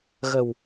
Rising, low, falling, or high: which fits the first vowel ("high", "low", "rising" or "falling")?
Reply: low